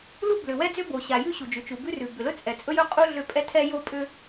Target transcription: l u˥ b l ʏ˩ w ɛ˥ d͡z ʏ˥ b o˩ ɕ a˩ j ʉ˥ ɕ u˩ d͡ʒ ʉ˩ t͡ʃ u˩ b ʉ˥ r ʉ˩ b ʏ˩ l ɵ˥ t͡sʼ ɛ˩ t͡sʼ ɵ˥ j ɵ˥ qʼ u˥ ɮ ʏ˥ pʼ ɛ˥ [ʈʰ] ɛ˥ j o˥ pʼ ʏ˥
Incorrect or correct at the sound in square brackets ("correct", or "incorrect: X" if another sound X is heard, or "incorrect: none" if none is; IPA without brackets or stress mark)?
incorrect: tʰ